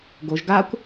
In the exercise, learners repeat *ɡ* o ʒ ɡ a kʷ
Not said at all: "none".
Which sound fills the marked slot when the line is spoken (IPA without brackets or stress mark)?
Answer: ɡ